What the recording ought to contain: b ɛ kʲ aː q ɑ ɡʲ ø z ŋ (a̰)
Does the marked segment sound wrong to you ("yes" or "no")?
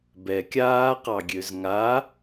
yes